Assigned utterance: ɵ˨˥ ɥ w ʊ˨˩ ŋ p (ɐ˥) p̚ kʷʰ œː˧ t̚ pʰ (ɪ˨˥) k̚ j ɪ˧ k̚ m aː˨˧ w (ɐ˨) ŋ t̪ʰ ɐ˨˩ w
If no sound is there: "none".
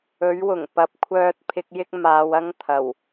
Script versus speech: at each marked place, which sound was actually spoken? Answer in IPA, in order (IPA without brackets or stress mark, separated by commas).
ɐ˨, ɪ˧, ɐ˥